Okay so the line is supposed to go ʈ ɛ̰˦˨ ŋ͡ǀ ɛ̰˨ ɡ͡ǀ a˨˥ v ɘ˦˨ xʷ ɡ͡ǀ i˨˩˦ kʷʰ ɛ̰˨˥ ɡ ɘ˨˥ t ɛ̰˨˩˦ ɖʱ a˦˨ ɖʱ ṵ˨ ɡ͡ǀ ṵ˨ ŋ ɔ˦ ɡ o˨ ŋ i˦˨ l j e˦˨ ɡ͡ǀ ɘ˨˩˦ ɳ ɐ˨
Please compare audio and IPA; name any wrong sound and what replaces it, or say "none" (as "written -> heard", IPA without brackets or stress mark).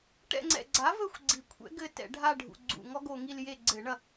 none